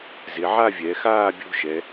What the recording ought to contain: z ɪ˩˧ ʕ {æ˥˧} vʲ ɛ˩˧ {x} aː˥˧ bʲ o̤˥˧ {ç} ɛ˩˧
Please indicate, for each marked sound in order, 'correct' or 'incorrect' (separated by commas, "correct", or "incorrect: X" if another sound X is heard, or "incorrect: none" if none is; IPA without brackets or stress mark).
incorrect: a˥˧, correct, incorrect: ʃ